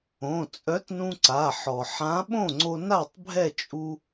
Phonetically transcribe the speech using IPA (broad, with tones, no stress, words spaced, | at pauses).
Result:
õ˩˧˩t͡sʼœ˨˥t nũ˧ǀa˩˧˩ħɔ˩ ħã˨˥ɓõ˥˩ŋ͡ǀo˧na˥˩tˤ bʱɛ˥˩t͡ʃʼu˧